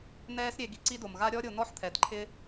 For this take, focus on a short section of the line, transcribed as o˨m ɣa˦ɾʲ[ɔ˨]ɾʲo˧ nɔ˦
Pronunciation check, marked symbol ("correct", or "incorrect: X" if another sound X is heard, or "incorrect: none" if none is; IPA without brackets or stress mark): incorrect: ɔ˦